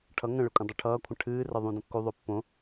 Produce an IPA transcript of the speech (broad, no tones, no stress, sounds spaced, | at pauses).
ʈʰ ʌ ŋ ə̃ ɭ ɨ kʷʼ ə̃ dˤ u ʈʰ ʌː kʷʰ ə̃ ʈʰ ɨː r ə ðˤ ũ d ə̃ kː u ðˤ o pː õ